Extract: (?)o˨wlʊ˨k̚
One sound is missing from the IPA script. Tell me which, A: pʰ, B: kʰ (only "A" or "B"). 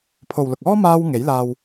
A